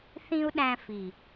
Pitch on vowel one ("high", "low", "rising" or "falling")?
high